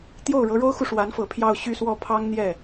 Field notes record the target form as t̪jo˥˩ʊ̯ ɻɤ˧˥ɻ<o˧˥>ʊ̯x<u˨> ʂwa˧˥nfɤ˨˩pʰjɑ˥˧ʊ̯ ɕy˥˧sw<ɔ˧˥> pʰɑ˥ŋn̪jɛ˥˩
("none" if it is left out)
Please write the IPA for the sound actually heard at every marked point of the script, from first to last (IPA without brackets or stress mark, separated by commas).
o˥, u˨, ɔ˥˩